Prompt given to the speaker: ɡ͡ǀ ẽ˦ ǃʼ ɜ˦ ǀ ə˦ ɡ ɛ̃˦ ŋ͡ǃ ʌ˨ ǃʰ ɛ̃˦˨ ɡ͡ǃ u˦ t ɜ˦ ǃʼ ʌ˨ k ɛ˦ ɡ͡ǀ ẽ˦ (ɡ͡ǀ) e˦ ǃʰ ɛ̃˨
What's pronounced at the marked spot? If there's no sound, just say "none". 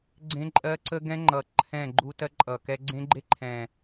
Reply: ɡ͡ǃ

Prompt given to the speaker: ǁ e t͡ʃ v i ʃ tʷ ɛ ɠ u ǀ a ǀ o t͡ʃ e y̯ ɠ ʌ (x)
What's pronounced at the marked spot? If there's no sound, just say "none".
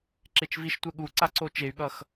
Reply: x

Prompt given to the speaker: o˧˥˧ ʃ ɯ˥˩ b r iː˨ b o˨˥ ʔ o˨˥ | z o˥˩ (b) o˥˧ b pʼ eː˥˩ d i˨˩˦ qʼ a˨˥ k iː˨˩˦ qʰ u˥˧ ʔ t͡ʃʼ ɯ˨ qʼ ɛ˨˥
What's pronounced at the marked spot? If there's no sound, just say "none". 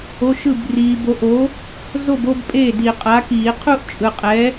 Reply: b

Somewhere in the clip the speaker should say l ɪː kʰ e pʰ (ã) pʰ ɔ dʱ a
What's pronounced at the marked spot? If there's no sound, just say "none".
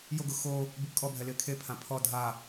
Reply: ã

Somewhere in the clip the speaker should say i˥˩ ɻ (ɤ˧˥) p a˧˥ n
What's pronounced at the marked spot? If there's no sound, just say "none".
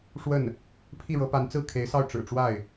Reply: ɤ˧˥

